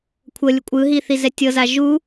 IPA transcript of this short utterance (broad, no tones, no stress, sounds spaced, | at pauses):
kʷʰ ɤ lʲ ɯ kʷʼ ɯ ɦ i θ i z ɛ tʲ ɤ z a ʒ u